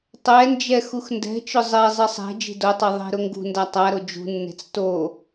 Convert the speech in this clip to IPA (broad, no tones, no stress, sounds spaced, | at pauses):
tˤ ɛ n d͡ʒ ɛ x u x n d ɛ̤ t͡ʃ ʊ zˤ ɛ zˤ e sˤ ɛ̤ d͡ʒ i̤ d o tˤ e ðˤ e̤ ɾ ʊ ŋ ɡ ṳ n d a tˤ a ɾ o d͡ʒ ṳ nː e̤ t͡s t o